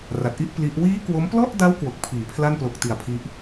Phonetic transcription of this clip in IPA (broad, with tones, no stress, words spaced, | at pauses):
ra˨˩t̚ʔi˥˩ʔ pli˦˥ʔ wiː˦˥ kwo˦˥m plɔ˥˩ʔda˦˥w kwo˨˩k̚pʰiː˩˦ pʰla˥˩nplo˨˩k̚ ti˨˩a̯pʰi˦˥ʔ